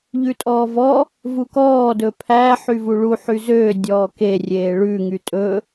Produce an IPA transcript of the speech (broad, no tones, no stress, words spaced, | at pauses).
ʎʉtʼɔːvɔ | vukɔː dɵpʰæ ħyvuɭu ħyzøː dʲɔːke rʲeːɭʉ ŋytʼɵ